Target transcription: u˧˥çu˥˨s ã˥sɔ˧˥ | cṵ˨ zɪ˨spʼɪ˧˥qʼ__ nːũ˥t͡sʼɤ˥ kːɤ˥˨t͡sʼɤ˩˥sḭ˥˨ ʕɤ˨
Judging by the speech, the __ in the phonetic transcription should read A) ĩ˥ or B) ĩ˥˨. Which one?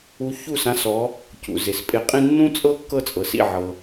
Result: A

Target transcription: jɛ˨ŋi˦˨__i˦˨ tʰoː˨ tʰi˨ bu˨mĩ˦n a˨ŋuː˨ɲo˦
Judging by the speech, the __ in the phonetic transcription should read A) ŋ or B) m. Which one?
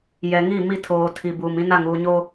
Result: B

